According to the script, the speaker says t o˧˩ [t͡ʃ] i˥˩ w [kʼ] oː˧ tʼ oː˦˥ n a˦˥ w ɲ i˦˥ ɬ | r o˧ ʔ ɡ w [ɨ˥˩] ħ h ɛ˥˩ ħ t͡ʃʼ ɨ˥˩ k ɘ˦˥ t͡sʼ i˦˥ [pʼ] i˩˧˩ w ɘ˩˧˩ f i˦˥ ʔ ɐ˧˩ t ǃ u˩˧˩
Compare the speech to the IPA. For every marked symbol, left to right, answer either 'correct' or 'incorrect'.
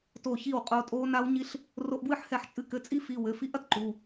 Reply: incorrect, incorrect, correct, incorrect

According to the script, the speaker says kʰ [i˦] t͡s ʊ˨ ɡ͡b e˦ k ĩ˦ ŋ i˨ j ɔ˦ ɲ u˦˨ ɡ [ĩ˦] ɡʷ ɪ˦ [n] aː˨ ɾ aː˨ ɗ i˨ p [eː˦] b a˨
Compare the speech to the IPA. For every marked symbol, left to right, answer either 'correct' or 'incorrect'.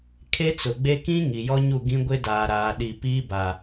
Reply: incorrect, correct, incorrect, incorrect

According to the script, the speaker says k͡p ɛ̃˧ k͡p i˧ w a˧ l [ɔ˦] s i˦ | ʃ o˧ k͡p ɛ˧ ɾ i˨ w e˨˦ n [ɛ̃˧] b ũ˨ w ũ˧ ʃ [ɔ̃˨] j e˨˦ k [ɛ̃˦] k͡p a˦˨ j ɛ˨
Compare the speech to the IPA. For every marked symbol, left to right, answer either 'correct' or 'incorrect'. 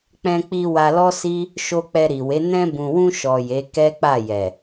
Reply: correct, correct, incorrect, incorrect

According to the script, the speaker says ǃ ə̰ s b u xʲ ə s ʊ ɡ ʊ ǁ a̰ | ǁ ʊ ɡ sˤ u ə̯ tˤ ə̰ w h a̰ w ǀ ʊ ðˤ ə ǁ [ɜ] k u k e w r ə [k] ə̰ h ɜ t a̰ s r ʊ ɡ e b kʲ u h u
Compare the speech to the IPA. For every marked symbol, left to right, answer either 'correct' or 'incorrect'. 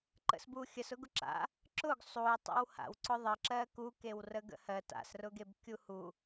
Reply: correct, incorrect

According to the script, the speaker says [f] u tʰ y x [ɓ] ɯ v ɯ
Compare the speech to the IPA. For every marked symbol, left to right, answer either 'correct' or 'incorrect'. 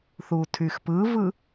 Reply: incorrect, incorrect

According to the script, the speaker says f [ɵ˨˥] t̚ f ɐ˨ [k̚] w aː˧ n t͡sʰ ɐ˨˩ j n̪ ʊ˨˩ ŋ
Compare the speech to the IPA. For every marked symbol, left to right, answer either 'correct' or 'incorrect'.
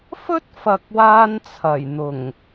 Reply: incorrect, correct

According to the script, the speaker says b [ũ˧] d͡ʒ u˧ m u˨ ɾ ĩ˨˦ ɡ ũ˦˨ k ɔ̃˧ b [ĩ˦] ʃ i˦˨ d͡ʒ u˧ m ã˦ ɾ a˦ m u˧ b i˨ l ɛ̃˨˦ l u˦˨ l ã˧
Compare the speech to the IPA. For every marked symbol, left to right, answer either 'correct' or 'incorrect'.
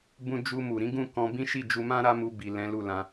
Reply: correct, correct

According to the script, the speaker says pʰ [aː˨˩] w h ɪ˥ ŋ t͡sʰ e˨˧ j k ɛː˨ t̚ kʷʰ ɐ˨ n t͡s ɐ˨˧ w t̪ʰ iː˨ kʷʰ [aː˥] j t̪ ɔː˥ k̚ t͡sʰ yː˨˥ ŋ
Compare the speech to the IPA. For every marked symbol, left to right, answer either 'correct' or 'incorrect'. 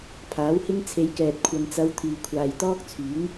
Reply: incorrect, incorrect

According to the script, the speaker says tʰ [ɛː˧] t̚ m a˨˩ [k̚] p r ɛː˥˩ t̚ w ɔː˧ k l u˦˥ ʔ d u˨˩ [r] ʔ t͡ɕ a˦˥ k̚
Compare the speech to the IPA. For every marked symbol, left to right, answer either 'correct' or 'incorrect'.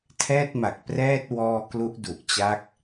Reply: incorrect, correct, incorrect

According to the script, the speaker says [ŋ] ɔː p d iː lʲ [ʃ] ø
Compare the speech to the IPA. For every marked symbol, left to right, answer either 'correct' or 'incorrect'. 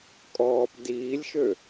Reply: incorrect, correct

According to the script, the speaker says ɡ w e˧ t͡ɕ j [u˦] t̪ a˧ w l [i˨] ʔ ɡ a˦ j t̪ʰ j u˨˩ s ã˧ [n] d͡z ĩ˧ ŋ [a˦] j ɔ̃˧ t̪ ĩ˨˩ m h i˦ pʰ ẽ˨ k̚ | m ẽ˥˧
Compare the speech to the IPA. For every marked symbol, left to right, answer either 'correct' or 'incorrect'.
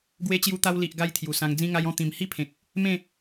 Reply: incorrect, correct, incorrect, incorrect

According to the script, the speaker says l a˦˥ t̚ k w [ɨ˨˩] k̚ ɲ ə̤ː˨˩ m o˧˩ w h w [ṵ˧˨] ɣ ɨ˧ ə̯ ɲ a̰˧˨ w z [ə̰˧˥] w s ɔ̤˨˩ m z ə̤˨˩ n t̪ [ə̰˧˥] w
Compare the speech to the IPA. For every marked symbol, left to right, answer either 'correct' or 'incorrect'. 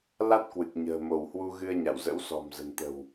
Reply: correct, incorrect, correct, incorrect

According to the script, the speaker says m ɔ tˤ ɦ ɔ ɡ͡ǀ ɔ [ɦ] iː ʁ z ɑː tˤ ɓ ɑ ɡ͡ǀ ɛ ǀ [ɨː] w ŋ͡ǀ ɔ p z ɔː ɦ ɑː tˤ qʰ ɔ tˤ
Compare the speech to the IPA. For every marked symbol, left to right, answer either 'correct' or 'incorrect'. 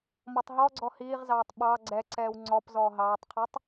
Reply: incorrect, incorrect

